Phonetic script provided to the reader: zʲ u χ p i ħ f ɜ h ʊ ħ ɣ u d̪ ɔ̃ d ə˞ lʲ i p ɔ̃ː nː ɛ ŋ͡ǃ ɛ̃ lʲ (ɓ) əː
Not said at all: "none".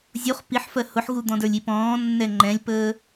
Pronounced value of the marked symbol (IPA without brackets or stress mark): p